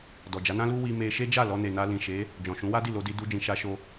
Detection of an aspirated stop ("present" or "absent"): absent